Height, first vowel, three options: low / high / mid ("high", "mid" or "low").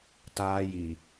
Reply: low